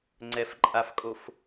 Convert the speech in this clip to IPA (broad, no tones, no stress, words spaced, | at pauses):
ŋ͡ǀɛfǃʼafkʼof